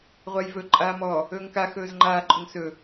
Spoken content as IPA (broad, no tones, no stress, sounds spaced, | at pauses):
ʁʷ a j v ɵ ǃʼ aː m ɔ | ɵː ŋ k a x ɵː z ŋ͡ǃ aː ǃʼ ɵ ŋ s ɵ